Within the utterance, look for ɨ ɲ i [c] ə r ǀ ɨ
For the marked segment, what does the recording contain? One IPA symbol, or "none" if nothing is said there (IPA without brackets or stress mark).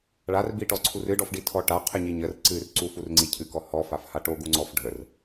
ɲ